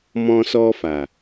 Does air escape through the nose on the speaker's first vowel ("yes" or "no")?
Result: yes